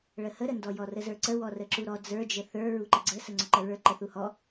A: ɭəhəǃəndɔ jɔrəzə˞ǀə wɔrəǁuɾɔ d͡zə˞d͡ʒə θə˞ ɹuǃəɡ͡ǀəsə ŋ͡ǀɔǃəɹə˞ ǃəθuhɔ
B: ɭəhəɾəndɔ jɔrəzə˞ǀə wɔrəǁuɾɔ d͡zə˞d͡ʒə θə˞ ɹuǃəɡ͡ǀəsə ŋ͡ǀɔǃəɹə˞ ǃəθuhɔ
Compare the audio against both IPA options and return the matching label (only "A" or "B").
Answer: B